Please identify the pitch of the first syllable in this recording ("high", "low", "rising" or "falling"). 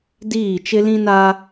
falling